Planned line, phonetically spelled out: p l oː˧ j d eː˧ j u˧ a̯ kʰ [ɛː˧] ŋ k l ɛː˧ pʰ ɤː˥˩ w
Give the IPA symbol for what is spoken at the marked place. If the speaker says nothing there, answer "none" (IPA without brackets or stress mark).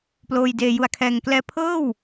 ɛː˧